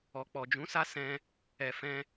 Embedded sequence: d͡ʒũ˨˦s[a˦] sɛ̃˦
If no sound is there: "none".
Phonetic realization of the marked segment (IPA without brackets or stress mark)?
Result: a˦